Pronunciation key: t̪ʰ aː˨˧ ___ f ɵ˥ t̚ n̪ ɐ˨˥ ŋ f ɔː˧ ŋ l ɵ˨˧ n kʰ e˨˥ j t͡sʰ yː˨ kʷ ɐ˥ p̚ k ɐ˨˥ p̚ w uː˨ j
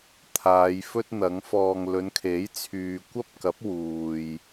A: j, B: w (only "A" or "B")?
A